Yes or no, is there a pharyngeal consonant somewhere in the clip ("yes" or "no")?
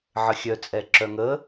yes